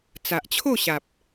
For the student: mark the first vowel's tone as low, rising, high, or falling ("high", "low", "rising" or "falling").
low